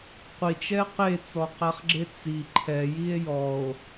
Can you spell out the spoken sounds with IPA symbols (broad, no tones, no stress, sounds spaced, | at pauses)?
qʷ i t͡ʃ ɛ q e t͡s ɔ q æ χ ɡ͡ǁ e t͡s i ǃʰ ɛ j i e̯ j ɔ o̯